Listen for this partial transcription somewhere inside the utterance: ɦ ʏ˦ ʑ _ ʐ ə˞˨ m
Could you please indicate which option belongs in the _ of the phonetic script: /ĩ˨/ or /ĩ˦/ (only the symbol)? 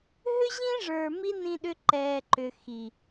ĩ˦